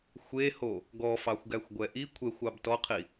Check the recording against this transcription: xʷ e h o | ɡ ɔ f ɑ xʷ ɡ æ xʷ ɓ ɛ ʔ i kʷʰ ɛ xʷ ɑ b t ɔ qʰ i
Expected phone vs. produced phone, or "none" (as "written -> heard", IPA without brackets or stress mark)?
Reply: ɓ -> ɡʷ